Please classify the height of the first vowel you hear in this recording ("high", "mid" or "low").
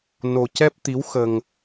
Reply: mid